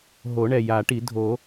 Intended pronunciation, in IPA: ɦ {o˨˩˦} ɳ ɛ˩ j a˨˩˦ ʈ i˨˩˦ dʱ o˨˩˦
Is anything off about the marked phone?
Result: no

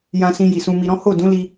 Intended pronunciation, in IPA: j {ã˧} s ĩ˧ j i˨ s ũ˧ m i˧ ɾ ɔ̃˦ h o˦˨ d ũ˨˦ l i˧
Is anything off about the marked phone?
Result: no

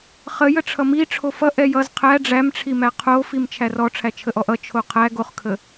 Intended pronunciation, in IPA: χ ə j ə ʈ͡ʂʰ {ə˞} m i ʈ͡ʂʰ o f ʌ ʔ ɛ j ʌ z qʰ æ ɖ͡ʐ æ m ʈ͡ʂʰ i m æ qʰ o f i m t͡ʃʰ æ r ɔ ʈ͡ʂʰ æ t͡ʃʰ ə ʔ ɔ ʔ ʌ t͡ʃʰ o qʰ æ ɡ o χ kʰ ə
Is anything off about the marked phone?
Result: yes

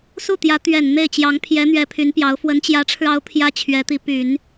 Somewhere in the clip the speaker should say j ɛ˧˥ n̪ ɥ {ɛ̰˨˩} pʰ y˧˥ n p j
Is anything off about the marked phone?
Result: yes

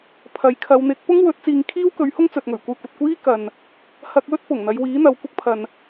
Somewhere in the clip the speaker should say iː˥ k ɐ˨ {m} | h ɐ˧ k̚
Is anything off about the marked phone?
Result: yes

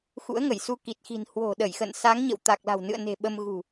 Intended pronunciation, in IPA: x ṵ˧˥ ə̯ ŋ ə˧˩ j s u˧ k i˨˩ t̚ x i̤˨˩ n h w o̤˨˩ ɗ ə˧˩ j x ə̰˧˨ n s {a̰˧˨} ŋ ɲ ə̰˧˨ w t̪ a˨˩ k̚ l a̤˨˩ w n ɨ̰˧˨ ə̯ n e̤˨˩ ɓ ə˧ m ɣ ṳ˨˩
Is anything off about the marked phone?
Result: yes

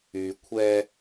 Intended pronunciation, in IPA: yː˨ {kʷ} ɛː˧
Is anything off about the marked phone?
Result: yes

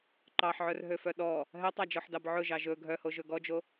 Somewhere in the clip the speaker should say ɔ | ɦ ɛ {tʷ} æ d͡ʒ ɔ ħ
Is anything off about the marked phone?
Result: yes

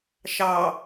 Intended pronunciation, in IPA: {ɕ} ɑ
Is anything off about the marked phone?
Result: yes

